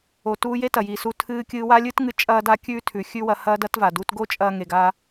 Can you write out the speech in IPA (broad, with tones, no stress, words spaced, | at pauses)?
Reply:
o˩tuː˧je˥ tɐ˩ji˩su˧ tʰɨː˧kʲɨː˧wa˥ lʲɨː˥tŋɨ˧ t͡ʃʼɐː˥da˥ kʲʉː˥tʰʉ˩ xʲʉ˥wɐ˧hɐː˥ dɐ˥tva˩ du˧t ɡo˥t͡ʃʼɐː˧ ŋe˩ɡa˧